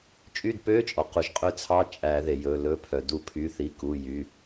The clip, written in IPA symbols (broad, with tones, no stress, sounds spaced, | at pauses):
t͡ʃʼ y˦˨ d p ø˧˥˧ t͡ʃʼ ɔ˩ q u˩ ʒ qʼ ø˦˨ t͡sʰ ɑ˧˥˧ t͡ʃʼ æ˨˩˦ ð e˩ j ɵ˩˧˩ l ɵ˧˥˧ pʰ œ˩ d u˨˩˦ pʰ y˩˧˩ θ i˩˧˩ k u˩˧˩ j y˩˧˩